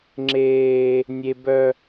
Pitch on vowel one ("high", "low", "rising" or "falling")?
high